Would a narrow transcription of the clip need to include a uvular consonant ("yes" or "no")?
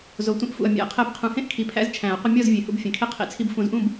yes